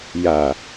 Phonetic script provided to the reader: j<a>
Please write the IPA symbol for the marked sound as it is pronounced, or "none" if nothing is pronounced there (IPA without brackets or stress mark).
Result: a